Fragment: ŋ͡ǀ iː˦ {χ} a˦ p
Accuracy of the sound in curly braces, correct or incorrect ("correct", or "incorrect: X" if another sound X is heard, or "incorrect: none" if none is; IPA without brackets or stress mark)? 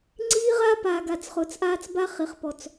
incorrect: ʁ